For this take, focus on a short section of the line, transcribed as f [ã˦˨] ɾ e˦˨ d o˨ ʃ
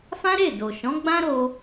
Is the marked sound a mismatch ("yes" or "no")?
yes